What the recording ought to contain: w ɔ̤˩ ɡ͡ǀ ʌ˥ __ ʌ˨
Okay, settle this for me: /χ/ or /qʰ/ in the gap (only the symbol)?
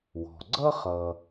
χ